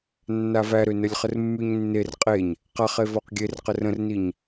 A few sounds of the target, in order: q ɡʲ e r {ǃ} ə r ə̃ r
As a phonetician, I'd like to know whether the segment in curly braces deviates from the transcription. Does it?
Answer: yes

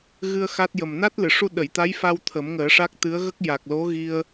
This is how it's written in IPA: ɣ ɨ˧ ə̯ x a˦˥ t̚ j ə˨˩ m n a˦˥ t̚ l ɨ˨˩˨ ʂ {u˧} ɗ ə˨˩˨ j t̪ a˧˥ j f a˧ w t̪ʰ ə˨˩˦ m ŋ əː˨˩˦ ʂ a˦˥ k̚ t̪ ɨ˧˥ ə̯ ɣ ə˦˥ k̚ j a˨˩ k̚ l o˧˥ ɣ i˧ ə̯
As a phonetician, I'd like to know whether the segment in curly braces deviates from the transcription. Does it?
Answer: no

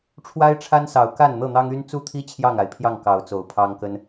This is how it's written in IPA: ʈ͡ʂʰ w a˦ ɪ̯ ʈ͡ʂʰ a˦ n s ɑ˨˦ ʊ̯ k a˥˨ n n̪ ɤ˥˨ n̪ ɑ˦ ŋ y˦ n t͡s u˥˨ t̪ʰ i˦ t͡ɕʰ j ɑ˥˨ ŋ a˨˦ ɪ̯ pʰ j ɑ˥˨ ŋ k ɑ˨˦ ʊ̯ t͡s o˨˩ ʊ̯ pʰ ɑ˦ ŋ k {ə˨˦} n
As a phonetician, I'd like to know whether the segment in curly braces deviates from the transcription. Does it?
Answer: yes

